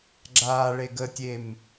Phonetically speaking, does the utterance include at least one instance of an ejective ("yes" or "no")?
no